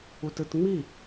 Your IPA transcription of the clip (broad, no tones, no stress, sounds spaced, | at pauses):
u t ɯ t ŋ͡m i